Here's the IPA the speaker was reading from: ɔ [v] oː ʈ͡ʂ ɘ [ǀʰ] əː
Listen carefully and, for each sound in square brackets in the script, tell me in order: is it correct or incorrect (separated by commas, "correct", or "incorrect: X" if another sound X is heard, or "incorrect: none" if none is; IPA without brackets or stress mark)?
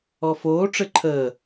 incorrect: f, incorrect: ǃʰ